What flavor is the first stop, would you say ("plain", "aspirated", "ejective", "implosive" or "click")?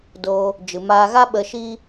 plain